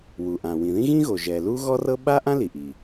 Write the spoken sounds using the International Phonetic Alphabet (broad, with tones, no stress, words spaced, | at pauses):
wu˩ʔã˩ wĩ˩ðĩ˥ɣĩ˥ɣo˩ ʒɛ˩lu˥ɣɔ˥rɤ˥ ɓa˥ʔã˥li˩ʔi˩